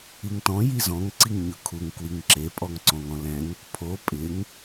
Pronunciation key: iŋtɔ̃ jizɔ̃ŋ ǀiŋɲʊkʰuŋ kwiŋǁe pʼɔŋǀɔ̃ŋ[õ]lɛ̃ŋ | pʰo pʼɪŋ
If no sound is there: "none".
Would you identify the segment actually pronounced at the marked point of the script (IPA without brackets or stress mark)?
ɔ̃